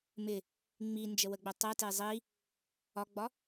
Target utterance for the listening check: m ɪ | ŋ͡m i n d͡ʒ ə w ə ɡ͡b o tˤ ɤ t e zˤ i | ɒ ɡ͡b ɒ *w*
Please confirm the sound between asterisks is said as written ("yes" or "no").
no